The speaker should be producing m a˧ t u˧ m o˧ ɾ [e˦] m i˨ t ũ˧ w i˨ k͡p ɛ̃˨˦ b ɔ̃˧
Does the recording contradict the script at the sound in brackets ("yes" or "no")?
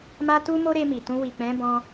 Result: yes